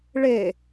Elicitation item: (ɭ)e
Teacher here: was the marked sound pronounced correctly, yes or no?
yes